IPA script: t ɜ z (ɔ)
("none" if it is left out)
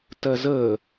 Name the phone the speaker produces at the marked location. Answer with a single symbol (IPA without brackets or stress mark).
ə